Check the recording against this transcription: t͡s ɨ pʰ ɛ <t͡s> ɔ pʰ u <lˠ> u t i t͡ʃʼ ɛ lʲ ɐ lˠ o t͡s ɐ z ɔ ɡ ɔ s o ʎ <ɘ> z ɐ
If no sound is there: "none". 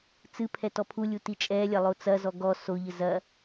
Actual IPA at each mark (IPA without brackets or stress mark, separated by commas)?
t, lʲ, ɘ